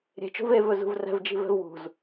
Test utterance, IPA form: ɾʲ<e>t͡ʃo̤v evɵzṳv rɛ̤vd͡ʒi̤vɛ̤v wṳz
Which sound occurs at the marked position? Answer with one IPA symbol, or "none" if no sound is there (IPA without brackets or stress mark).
e̤